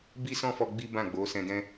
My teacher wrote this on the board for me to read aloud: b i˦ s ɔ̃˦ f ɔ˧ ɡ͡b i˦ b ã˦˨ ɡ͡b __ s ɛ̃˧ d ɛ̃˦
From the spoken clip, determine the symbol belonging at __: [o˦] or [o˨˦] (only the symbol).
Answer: o˨˦